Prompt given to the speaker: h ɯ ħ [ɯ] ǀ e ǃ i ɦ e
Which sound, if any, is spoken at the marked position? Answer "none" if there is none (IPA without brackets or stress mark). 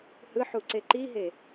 u